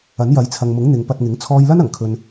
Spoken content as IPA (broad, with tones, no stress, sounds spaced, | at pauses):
ɐ˨˥ n j ɐ˨˥ j t͡sʰ ɐ˨ ŋ m ʊ˨˥ ŋ n̪ ɪ˨˧ ŋ p ɐ˧ t̚ ŋ ɪ˨˥ ŋ t͡sʰ ɔː˧ j l ɐ˥ n ɐ˨˩ ŋ kʰ ɵ˨ n